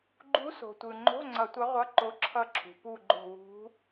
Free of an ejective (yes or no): yes